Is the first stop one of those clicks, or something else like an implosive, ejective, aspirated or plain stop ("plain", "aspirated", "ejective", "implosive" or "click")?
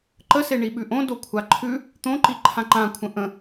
click